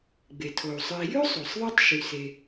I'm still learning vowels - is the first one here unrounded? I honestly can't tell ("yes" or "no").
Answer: yes